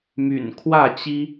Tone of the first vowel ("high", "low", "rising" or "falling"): low